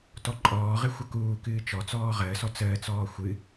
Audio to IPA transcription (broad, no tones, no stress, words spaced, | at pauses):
tɔǃʼɔːʁɨ xʷəkuːkɨː t͡ʃɔt͡sɔː ʁəːsɔ t͡səːt͡sɔː xʷɨ